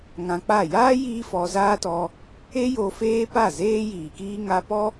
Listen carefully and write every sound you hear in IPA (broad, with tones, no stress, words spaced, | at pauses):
ŋã˧k͡pa˦˨ jaː˦ jiː˦fɔ˧zaː˦tɔ˧ | e˦jo˧ feː˦pa˦˨ zeː˦jiː˨kiː˦ ŋa˧pɔ˦